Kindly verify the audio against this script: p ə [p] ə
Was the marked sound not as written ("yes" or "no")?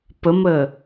yes